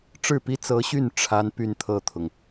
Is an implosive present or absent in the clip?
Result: absent